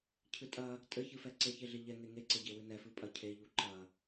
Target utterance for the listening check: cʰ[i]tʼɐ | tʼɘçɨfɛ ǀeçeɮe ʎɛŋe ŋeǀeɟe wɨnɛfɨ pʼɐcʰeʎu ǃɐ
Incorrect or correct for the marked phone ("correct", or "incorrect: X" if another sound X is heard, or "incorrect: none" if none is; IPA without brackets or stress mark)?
incorrect: ɨ